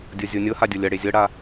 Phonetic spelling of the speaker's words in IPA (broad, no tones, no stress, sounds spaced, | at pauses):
dʲ ɤ zʲ o nʲ ɤ h a dʲ ɤ lʲ ɐ ɽ e zʲ ɤ ɽ a